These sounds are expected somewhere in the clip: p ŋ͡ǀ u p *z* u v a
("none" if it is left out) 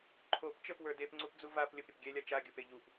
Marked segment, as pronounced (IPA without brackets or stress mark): d͡z